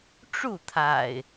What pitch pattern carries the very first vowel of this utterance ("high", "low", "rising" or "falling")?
falling